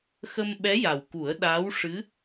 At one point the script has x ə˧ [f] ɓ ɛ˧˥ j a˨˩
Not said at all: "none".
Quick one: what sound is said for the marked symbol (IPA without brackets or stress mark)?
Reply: m